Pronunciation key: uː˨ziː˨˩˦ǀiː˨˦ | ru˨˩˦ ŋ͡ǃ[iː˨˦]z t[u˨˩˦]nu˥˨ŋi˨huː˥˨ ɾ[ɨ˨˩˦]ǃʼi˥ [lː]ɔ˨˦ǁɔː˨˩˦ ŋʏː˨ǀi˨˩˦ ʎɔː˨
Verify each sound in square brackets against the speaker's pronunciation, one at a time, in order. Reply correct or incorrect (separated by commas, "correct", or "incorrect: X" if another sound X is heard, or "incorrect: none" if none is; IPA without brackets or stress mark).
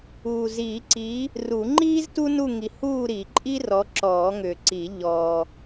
incorrect: iː˥, incorrect: u˥, incorrect: i˨˩˦, incorrect: r